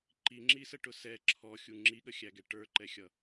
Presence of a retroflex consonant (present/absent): present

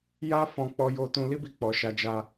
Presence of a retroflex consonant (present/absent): absent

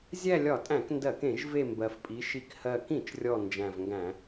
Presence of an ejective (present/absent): present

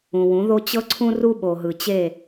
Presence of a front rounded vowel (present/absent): absent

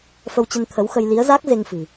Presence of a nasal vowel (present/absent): absent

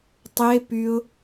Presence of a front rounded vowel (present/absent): present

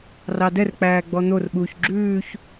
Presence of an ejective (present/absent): absent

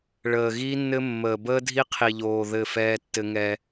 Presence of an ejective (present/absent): absent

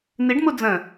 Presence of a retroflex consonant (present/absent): present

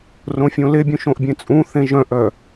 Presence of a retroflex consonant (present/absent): absent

